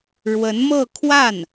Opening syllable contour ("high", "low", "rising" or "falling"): rising